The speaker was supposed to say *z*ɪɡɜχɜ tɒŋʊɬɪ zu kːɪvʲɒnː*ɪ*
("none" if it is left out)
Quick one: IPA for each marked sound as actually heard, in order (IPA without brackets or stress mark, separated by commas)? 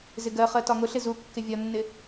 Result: z, ɪ